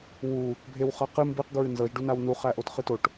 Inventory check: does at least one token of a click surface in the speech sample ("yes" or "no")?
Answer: no